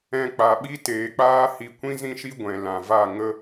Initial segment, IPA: ɛ̃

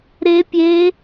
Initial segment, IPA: ɾ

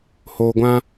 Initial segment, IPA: h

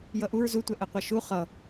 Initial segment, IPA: j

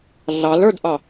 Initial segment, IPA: ɮ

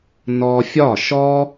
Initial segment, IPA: n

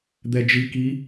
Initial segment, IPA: d̪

